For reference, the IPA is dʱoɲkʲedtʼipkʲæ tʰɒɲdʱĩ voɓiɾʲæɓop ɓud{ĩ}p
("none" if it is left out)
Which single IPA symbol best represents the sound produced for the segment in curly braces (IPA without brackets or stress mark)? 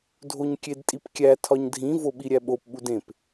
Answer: ẽ